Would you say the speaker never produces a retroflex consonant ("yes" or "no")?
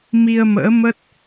yes